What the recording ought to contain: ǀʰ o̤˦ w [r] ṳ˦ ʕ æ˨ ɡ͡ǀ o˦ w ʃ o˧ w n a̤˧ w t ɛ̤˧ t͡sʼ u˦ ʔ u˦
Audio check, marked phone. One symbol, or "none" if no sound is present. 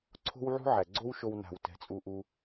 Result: ʕ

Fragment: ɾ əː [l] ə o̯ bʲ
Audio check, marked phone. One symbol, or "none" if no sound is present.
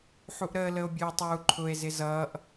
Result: l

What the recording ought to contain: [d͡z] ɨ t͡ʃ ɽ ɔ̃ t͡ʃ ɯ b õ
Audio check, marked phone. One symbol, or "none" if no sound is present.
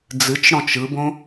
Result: d͡z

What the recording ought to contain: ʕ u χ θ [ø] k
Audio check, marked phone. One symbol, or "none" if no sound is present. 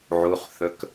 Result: ɵ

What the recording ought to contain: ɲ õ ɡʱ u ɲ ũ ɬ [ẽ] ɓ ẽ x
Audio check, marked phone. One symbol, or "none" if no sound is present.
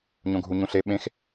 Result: e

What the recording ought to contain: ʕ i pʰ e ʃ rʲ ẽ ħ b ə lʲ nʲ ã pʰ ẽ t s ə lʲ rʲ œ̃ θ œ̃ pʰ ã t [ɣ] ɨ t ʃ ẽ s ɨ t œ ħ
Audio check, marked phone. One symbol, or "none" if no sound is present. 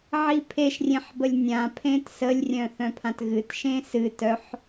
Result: ɣ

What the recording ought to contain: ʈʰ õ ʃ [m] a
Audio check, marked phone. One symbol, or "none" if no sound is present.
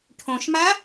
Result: m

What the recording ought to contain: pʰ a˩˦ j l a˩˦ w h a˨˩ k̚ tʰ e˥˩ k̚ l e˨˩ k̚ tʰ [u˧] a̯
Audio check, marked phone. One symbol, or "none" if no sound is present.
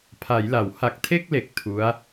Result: u˦˥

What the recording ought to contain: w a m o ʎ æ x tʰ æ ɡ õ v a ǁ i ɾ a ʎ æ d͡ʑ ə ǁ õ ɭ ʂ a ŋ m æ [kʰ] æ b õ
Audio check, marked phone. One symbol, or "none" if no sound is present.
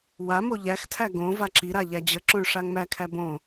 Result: kʰ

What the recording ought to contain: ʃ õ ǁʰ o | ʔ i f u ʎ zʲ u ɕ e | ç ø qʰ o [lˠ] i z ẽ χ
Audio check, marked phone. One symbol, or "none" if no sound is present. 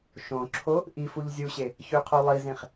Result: lˠ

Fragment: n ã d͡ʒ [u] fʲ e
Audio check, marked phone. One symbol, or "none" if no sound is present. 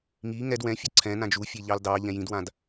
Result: u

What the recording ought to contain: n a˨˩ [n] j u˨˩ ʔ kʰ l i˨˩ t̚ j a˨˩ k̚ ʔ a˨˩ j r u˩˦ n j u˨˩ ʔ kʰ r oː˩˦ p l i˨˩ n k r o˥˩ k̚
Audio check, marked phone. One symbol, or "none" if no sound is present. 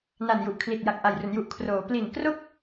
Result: n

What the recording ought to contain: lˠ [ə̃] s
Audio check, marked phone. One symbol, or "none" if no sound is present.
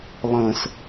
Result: ə̃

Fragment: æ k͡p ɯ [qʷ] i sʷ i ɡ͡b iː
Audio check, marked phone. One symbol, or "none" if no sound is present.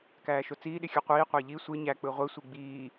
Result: ʁʷ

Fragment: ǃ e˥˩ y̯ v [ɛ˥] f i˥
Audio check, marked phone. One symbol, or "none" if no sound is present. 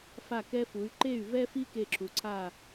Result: ɛ˥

